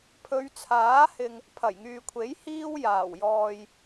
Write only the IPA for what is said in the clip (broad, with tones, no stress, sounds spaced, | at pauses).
pʰ ɵ˨˧ ɥ t͡sʰ aː˨˥ h ɪ˨ ŋ | pʰ ɐ˨˩ j ŋ yː˨ kʷʰ e˨˥ j h iː˥ w j aː˨˩ w j ɔː˨ j